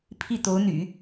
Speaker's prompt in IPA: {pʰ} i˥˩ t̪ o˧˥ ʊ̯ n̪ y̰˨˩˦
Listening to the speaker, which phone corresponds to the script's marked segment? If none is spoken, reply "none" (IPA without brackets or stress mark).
pʰ